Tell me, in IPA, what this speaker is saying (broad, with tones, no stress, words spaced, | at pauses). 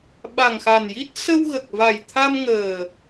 ɓa˨˩ŋxa˨˩nji˦˥t̚ sə˧wɣə˨˩k̚va˨˩jt̪ʰa˧m ŋəː˨˩